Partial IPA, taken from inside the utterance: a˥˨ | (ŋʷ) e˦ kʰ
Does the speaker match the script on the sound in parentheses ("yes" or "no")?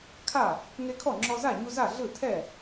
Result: no